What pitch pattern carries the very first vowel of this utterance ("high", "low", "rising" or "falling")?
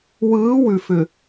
rising